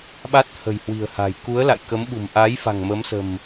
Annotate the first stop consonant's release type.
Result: implosive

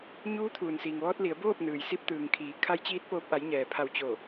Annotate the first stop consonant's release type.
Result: aspirated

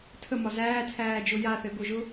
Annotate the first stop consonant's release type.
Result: aspirated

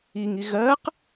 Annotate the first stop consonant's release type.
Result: plain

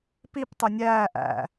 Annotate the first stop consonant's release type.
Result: plain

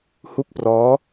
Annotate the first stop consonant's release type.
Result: plain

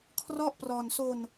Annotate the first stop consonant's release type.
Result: aspirated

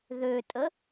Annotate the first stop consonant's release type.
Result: ejective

